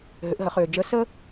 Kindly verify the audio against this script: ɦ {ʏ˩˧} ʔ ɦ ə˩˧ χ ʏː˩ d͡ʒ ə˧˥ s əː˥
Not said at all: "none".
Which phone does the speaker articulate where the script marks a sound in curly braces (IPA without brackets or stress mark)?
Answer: ʏ˩˧